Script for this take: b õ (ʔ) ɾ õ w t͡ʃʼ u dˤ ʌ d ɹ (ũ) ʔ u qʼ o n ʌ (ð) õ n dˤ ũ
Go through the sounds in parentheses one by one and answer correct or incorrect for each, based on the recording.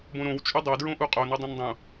incorrect: none, incorrect: õ, incorrect: dˤ

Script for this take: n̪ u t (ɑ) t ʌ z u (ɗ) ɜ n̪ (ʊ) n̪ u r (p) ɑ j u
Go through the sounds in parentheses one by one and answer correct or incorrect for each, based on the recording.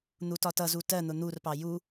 incorrect: ɒ, incorrect: t, correct, correct

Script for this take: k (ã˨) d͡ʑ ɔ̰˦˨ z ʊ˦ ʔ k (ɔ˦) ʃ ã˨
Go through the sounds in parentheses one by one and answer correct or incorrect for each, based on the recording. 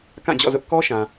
incorrect: ã˦˨, correct

